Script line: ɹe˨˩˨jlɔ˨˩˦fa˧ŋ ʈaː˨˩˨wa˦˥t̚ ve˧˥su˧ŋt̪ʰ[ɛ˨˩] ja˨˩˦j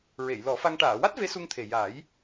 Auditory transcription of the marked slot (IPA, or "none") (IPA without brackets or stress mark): e˨˩